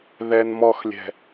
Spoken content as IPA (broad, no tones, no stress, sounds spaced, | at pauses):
ð ɛ n m ɔ x lʲ ɛ̤